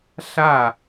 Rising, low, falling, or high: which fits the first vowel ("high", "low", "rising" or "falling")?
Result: falling